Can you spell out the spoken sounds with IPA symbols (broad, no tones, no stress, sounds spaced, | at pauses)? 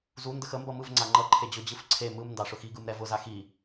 z u n d ə x ə m b ʌ m ɯ v ŋ͡ǀ a ŋ͡ǃ ʌ ǃʰ e d͡ʑ ʊ d͡ʑ ɯ f ǀʰ e m ɯ m n d ɑ ʂ ʊ x i ɡ ɯ m ɾ ɛ v ʊ z a x i